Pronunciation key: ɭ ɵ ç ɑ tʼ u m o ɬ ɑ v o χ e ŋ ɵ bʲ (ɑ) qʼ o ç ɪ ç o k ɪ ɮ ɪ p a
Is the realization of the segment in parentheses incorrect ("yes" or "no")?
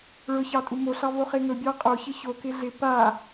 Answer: no